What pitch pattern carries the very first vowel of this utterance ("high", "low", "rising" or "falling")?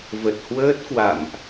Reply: low